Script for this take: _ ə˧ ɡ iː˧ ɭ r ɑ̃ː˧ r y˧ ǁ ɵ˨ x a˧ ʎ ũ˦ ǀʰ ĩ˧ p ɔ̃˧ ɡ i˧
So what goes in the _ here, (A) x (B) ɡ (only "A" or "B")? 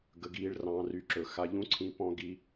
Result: B